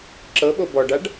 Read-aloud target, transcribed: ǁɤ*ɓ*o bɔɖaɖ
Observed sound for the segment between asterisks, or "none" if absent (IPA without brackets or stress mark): ɓ